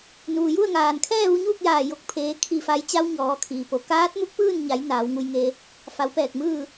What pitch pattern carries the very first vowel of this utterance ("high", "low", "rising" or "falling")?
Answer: low